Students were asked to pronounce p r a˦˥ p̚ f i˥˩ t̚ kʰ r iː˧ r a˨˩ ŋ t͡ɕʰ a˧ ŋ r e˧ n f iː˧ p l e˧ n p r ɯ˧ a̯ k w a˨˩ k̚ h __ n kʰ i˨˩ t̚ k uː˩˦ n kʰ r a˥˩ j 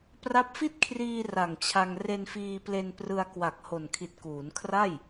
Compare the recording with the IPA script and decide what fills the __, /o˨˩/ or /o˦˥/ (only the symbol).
o˨˩